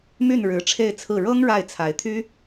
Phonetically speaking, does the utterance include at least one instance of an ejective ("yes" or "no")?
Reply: no